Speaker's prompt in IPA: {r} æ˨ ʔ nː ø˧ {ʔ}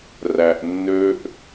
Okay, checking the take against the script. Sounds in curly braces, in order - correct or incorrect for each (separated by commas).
correct, correct